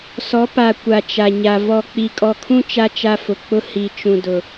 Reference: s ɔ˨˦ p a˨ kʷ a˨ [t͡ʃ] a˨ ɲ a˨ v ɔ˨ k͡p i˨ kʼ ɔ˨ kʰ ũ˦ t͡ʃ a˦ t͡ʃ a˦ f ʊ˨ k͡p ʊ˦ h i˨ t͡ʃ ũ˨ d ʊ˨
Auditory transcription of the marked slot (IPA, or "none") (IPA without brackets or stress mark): t͡ʃ